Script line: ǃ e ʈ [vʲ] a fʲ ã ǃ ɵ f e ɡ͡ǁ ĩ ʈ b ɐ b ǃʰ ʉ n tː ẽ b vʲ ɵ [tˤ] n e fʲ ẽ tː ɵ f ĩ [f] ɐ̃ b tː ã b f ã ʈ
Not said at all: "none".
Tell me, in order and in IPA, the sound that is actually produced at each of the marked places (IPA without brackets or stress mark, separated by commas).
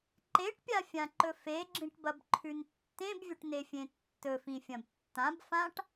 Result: pʲ, ʈ, fʲ